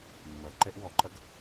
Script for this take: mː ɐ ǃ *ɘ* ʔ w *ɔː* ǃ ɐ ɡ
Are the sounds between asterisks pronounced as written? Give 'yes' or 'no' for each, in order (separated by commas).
no, no